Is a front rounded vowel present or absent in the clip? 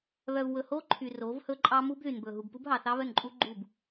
present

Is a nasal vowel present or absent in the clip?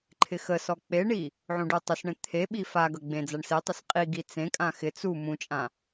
present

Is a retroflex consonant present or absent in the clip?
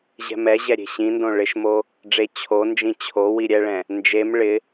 present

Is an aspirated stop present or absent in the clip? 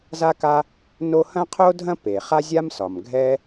present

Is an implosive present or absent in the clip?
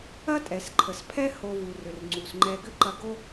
absent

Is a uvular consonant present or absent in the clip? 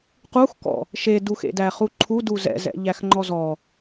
present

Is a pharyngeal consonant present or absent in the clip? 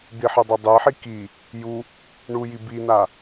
present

